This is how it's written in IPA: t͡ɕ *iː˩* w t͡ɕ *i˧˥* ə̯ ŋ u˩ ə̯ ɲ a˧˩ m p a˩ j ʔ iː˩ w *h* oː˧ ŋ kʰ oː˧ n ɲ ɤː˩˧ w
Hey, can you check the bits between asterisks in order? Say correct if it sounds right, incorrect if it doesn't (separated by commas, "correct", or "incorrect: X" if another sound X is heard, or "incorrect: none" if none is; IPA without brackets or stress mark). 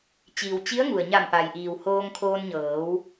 correct, correct, correct